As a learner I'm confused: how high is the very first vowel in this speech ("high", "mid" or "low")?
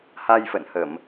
low